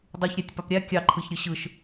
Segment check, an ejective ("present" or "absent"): absent